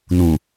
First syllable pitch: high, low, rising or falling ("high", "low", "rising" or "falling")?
low